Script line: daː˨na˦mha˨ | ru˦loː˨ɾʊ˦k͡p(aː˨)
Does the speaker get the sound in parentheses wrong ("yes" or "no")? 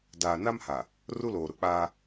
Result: yes